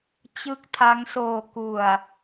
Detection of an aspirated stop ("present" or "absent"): present